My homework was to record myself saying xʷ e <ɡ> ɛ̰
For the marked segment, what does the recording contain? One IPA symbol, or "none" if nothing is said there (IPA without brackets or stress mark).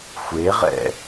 ʁ